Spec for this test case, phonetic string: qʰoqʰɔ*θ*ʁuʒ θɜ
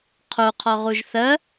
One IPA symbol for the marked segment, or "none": none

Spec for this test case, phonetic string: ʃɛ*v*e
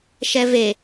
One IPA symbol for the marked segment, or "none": v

